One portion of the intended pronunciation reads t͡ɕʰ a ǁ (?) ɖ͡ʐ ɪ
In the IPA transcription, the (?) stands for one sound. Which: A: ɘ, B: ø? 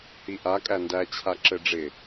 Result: A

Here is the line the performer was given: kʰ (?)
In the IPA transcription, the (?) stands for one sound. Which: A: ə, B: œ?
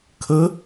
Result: A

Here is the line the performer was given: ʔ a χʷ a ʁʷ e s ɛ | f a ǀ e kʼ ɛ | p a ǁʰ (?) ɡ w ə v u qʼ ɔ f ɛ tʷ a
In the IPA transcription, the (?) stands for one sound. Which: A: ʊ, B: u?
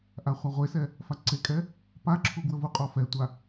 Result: B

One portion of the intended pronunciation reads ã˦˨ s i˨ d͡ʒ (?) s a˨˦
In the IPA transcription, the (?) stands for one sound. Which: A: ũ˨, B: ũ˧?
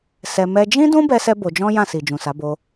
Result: A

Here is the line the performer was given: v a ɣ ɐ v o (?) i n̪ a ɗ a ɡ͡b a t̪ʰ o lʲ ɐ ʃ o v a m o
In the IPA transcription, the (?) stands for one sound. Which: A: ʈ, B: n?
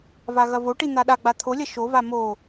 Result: A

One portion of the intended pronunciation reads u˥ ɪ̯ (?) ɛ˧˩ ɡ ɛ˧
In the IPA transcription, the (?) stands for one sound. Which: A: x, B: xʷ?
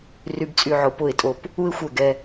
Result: B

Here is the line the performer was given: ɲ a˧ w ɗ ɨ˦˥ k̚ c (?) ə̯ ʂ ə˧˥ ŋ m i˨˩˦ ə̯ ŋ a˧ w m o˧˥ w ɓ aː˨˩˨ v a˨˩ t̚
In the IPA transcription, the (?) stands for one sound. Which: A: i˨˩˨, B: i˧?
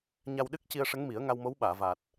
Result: B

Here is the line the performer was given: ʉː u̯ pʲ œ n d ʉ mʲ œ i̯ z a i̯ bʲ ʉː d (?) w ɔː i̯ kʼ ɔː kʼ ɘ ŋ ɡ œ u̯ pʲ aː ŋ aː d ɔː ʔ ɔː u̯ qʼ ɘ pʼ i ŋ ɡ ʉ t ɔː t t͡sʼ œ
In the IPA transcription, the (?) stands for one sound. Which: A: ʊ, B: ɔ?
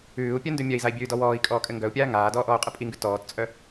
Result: B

